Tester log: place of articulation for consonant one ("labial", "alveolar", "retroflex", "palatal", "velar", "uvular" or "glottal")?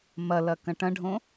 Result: labial